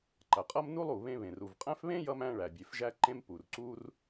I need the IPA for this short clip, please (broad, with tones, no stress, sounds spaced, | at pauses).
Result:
ǃ ɐ˩ qʼ ʌ˥ m n u˥ lˠ u˩ β ẽ˧ β ẽ˩ r u˩ v qʼ æ̃˥ f β ẽ˥ j ʌ˧ m æ̃˧ ɭ æ˩ bʲ e˩ f ʒ æ˧ ǃ ẽ˧ m p u˩ r ǀ u˧ r